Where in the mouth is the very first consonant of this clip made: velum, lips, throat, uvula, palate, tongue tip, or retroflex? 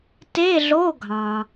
tongue tip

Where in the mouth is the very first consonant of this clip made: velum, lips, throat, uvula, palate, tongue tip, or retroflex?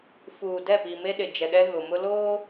lips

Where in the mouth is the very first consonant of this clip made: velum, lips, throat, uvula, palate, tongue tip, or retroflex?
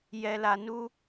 palate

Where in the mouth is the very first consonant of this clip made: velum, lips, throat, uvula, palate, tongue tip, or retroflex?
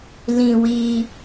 tongue tip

